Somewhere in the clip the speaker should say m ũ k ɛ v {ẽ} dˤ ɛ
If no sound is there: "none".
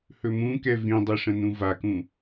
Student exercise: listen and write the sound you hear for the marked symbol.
ĩ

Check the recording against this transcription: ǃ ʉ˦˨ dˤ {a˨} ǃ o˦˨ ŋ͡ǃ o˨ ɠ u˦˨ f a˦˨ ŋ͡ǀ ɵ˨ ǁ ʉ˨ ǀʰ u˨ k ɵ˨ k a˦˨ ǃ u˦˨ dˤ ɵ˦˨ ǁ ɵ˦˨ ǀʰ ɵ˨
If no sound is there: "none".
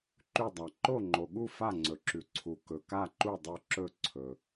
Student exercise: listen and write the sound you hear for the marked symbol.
a˨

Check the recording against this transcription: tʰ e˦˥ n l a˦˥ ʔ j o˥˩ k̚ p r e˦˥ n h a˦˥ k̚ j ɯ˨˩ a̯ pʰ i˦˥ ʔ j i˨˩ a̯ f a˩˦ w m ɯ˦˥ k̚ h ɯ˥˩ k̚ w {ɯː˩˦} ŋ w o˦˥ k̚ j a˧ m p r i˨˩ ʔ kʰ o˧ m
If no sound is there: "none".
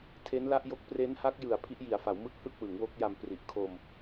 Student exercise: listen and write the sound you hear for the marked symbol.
ɯ˩˦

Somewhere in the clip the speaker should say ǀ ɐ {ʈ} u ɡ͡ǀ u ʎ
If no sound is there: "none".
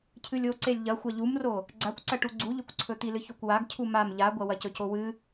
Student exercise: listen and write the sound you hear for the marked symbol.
ʈ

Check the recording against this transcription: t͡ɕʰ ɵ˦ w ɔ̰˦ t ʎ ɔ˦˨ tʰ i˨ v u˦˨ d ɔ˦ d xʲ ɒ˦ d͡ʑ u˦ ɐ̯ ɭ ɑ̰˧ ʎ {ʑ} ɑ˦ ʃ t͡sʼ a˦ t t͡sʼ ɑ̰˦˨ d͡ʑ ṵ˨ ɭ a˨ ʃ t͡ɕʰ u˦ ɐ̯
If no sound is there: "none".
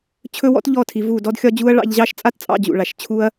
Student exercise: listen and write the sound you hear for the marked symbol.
ʑ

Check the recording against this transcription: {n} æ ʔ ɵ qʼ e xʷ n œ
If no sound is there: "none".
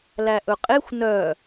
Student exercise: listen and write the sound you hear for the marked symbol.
l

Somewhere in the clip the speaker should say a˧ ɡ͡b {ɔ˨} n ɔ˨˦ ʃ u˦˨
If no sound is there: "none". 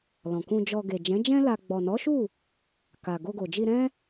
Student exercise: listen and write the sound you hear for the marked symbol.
ɔ˨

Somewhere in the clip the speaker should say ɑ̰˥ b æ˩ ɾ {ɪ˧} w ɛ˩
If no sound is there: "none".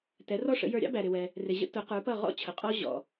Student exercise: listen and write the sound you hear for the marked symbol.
ɪ˩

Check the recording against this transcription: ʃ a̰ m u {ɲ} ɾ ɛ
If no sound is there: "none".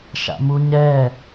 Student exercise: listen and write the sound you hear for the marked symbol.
ɲ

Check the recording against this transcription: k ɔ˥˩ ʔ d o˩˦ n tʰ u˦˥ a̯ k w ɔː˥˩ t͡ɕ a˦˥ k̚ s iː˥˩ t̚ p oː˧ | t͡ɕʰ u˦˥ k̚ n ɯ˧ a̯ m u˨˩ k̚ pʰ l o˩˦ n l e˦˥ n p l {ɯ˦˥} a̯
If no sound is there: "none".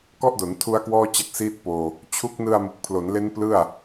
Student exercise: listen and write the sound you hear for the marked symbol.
ɯ˥˩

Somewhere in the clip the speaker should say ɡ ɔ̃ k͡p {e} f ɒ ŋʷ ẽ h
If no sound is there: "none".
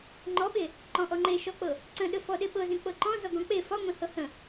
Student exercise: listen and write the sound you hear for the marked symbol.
e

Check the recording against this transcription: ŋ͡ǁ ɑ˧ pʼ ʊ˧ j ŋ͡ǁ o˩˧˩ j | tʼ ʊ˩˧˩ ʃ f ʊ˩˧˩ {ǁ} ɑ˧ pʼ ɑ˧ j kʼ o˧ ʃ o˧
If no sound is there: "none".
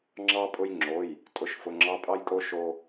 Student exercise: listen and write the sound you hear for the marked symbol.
ŋ͡ǁ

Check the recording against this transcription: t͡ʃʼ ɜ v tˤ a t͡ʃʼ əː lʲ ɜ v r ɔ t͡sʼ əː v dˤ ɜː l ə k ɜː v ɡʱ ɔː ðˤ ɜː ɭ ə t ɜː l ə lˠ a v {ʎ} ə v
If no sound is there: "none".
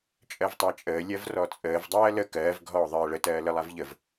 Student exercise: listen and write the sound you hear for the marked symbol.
ʎ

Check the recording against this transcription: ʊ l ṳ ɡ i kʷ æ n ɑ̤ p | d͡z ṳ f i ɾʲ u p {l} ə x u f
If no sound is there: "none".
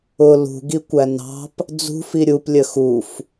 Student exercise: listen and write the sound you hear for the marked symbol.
lʲ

